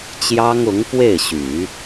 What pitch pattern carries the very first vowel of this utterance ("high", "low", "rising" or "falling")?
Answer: high